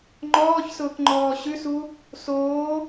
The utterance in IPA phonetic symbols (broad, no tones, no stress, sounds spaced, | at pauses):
ŋ͡ǃ ɔː ç s ʊː k ŋ͡ǃ ɔː ɕ ʉ s u | s oː